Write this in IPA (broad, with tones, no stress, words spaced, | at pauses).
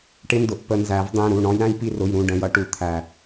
ʈɪ˦˥ndʊ˩˧˩ʔ pə˧nzæ˨˩˦vdˤĩ˩˧˩ ɾu˩˧˩ɳɔ̃˦˥j ɾæ̃˦˥jpi˧rʊ˩˧˩jɾũ˩˧˩ ɖə̃˩˧˩jʌ˧ ʈu˨˩˦t̪ʰæ˩